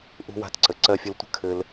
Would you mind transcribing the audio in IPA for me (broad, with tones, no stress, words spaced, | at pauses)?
ʔṳ˧wa̤˧tǀə˩ ǀɜ˧fʲə˧ltʷə̤˥ kʰɘ˧l